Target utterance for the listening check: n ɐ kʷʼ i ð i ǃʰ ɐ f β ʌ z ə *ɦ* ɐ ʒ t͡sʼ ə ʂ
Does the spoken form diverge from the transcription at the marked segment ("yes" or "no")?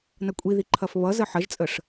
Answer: yes